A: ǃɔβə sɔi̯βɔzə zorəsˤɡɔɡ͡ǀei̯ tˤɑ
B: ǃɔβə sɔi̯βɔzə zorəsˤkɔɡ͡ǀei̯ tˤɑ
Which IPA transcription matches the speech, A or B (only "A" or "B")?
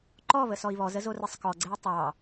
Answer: B